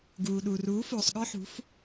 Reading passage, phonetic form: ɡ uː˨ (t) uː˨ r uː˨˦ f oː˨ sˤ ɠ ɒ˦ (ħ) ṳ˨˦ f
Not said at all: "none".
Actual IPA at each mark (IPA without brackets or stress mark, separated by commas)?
ɗ, ħ